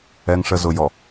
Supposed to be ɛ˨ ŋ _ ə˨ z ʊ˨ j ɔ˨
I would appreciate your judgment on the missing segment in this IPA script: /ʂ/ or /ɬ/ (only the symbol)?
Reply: ʂ